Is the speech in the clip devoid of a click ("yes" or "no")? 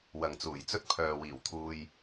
yes